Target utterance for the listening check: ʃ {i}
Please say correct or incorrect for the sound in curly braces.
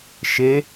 incorrect